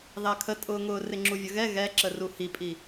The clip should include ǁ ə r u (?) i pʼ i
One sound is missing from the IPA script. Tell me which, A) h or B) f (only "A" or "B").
A